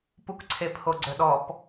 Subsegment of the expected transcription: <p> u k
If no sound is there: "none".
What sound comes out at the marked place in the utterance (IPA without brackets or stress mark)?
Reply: p